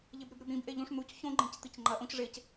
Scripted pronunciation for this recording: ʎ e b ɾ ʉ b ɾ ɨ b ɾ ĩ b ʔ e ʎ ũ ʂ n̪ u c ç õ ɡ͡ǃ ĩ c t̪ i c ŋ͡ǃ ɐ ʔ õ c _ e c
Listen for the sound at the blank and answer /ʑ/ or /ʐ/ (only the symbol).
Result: ʐ